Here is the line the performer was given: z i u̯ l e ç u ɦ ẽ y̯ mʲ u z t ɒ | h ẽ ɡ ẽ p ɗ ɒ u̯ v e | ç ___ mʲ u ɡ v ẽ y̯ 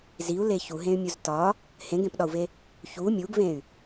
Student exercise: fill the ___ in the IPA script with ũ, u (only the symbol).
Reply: u